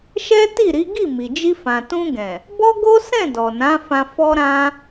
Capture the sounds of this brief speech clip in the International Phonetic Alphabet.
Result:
ʃ ɛ˦ t i˦˨ ɾ i˨˦ ɡ i˦˨ m i˨ d͡ʒ i˧ f ã˨ t ũ˧ ɡ ɛ̃˨ | b ɔ˦ ɡ o˦ s ɛ̃˦˨ d ɔ˨ n ã˨˦ f ã˧ f ɔ˦ ɾ ã˦

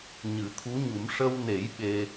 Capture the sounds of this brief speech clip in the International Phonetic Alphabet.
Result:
ɲ ɨ˨˩˦ t̪ʰ u˧˥ ɲ u˨˩˦ m ʂ ə˧ w n e˨˩˦ j ɓ e˧

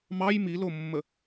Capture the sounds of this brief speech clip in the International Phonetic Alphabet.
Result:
m ɑ j m i l o mː ə

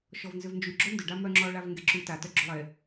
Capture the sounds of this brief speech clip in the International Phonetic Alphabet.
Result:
ʃ ɔ v n z ʏ v n d͡ʒ y ɡ͡ǁ o n d ʏ ɖ a m œ ŋ͡ǁ ɔ ɭ a v ŋ ɡ e ǁ y t a t œ ɡ͡ǁ ʏ lˠ e

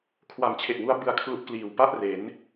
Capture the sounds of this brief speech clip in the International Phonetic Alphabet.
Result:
kʰ w a˨˩ m t͡ɕʰ e˨˩ ʔ w u˦˥ a̯ b ɯ˧ a̯ kʰ l u˦˥ ʔ k l iː˨˩ w p a˥˩ ʔ r e˩˦ n

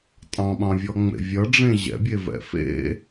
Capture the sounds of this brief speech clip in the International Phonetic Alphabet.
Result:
tʼ ɑ̃ ɓ ɑ̃ vʲ ɔ ŋ͡m ḛ vʲ ʌ ɖ͡ʐ ẽ ʑ ɛ̰ bʲ e v ɛ̰ f ḛ

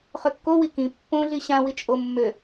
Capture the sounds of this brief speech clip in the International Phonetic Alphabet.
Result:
χ ø kː o w i k ĩ pː õ ɮ i ɕ ã w i t͡ʃʼ o mː ø

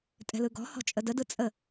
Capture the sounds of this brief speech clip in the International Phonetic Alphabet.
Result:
tʼ ɛ̤ l ɯ ɡ ɔ̤ h ɔ̤ t͡ʃʼ ə d ə d ɯ t͡sʼ ə

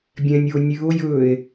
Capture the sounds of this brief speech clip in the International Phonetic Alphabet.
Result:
bʲ ɛ̃ nʲ o nʲ ʉ o̯ j ɵː e̯

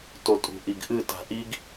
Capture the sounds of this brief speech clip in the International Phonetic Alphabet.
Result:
t o tʼ ṳ ʔ i ɡ ʔ ɨ t a̤ ʔ i ɡ

